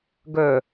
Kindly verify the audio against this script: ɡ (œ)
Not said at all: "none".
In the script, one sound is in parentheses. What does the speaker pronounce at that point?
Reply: œ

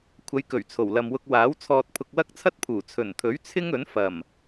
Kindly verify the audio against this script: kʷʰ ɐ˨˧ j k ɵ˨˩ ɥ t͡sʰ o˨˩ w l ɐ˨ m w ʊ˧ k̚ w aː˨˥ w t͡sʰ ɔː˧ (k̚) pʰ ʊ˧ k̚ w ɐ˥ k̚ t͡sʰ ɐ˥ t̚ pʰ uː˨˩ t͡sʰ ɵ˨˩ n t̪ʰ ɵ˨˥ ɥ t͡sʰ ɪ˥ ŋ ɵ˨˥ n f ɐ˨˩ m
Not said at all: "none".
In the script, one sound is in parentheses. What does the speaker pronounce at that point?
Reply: t̚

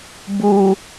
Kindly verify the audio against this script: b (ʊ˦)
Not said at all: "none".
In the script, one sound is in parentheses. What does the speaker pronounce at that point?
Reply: u˦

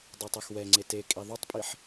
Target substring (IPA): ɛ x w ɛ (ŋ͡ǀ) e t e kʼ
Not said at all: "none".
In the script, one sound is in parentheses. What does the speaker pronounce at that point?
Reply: ŋ͡ǀ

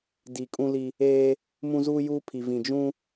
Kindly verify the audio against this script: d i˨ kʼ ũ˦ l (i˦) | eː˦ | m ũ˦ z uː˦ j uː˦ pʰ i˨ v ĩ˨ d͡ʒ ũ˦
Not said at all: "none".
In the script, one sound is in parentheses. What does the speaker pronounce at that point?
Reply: i˦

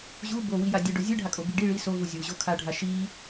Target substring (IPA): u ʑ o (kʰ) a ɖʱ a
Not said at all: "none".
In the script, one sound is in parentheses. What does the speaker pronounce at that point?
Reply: kʰ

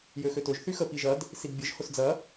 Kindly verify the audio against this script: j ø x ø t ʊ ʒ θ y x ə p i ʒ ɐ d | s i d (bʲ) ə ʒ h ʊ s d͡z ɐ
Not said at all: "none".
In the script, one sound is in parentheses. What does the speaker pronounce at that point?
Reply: bʲ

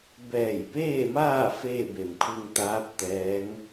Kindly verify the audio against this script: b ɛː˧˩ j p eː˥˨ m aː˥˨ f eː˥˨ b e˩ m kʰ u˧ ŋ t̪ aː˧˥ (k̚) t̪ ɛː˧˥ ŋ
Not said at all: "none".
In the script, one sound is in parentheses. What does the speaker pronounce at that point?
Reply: p̚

